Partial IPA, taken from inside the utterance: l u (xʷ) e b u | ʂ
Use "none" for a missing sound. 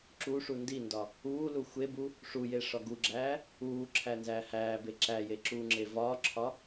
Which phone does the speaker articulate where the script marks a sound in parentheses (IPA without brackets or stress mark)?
xʷ